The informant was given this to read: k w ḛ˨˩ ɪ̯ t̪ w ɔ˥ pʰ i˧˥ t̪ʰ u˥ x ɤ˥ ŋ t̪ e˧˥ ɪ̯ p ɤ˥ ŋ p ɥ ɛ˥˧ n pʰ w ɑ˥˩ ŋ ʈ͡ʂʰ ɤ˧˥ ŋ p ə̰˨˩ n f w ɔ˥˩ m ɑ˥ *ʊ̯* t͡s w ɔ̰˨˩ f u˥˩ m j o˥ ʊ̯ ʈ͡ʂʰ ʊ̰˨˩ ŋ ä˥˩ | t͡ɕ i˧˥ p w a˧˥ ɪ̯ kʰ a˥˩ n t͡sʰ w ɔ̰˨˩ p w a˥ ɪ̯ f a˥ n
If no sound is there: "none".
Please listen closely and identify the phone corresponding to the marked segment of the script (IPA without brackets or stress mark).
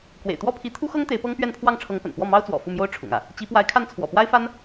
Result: ʊ̯